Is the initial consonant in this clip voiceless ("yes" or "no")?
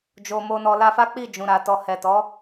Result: no